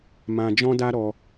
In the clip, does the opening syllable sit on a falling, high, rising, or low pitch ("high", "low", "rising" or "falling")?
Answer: high